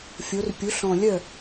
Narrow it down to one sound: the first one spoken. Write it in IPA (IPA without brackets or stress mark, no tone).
fʲ